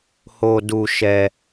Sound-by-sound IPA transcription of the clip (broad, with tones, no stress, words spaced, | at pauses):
ho˦du˦ʃɛ˦